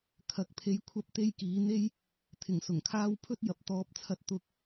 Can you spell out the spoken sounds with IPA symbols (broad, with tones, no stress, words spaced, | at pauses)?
kʰɐ˨k̚pʰe˨˧jkʷʰɐ˧p̚ t̪e˥jkiː˨˥ n̪e˧j | t̪ʰɪ˨˩ŋsʊ˨˩ŋkʰaː˧w pʰɵ˥t̚jɐ˨˥p̚t̪ɔː˨˥p̚t͡sʰɐ˧t̚ t̪ʊ˨k̚